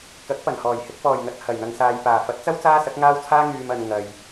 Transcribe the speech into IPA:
k ɐ˨˥ k̚ p ɐ˨˩ n h ɔː˨˩ j h ɪ˨ k̚ p ɔː˨˩ j ŋ ɐ˨ t̚ h ɐ˨˩ j n̪ ɐ˨ ŋ s aː˨ j p aː˨˩ f ɐ˨˥ t̚ t͡s ɐ˥ w t͡s aː˥ s ɐ˨˥ k̚ ŋ aː˥ w t͡sʰ aː˥ ŋ yː˨ m ɐ˨ n ŋ ɐ˧ j

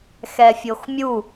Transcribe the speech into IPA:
x ɛ fʲ o x mʲ u

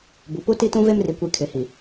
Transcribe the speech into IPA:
b u˨ p u˦ t i˦ t ũ˦ v e˦ m r i˨ kʷ i˨ kʰ ɪ˨ h i˨

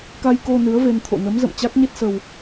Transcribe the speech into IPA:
k a˧ j k o˧ n ɨ˨˦ ə̯ v e˧ n t̪ʰ o̰˧˨ n ə˨˦ m z ə̰˧˨ m t͡ɕ a˦˥ k̚ ɲ e˦˥ t̚ s ə˧ w

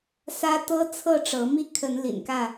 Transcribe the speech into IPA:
s ä˦ t̪ ɤ˦ t͡sʰ ɤ˥˨ ʈ͡ʂ ɤ˨˦ m i˦ kʰ ə˨˦ n l ḭ˨˩ n k ä˥˨

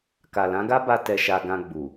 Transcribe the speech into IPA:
k a˨ l ã˨˦ ɡ a˦ b a˧ t ɛ˧ ʃ a˧ ɡ ã˧ ɡ͡b u˨

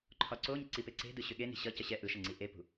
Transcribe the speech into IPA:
ǃʰ ɒ ǀ o ɲ ə ǀ i p e ǀ e̤ d ɯ ɕ ʏ ɠ e n i̤ ɕ ʌ c ə ɕ ɛ ʔ ɯ ʃ ə ŋ͡ǀ i ʔ e p ṳ

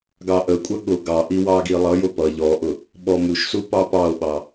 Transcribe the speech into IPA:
ɡ ɑ ʔ ə kʷʼ ə ɠ ʊ ɡ ɑ ʔ i w ɑ ɡ i lˠ ʌ j ʊ p ʌ ʎ ɔ ʔ ʊ | ɓ ɔ m u ʃ s u p ɑ p ɑ o̯ ɓ ɑ

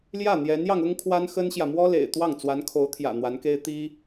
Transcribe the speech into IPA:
l j ä˥˩ n̪ j ɛ˧˥ n j ɑ˧ ŋ ʊ˥ ŋ kʰ w a˥ n x ə˥ n ɕ j ä˨ m w ɔ˥ l ḛ˨˩ ɪ̯ t̪ w ɑ˥˩ ŋ t͡s w a˧˥ n kʰ o˧˥ ʊ̯ t̪ʰ j ä̰˨˩ n̪ w a˧˥ n k e˥ ɪ̯ t̪ i˥

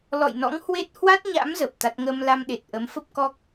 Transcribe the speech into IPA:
l ɔ̰˧˨ j n ɔ̰˧˥ ŋ h w e˦˥ t̚ h w a˦˥ t̚ ɲ a̰˧˥ m z ə˨˩ p̚ t̪ a˦˥ t̚ ŋ ə˧ m l a˧ m ɗ e˨˩ t̚ ʔ ə˨˦ m f ə˦˥ p̚ k ɔ˦˥ k̚

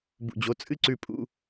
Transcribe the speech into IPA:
b ṵ˦˨ d͡ʑ o˧˥˧ t͡sʼ ɨ˥ ǀ ʉ˦˨ pʼ ṵ˧˥˧

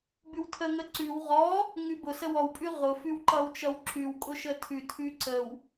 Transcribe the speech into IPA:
b ʉ w tʰ ə ŋ ə ǀ ʉ w ʁ ɔ | ŋ ʉ b ʊ s ə w ɔ w pʼ ʉ ʁ ʊ f ʉ w ǃ ʌ w t͡ʃ ʌ w ǁ ʉ w kʼ ʊ ʃ ə tʰ ʉ tʰ ʉ ǀ ə w

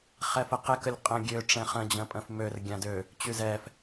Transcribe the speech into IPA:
χ ɛ f ə q ɛ k ə lʲ qʼ ə̃ ɡʲ ø ʈ͡ʂ ɛ̃ χ ə̃ d͡ʑ ə̃ pʼ ə̃ f m ø r ɡʲ ã d ø | t͡ɕ y z ɛ f

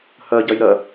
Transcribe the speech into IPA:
h ɜ ɟ ɜ j ɾ ɜ

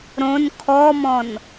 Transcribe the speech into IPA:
ɾ õ n kʰ ɔ m ɔ̃ n

